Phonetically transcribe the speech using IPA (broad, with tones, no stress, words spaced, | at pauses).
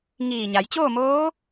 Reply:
ŋiː˧˩ɲa˩˧j t͡ɕoː˥˨moː˧˥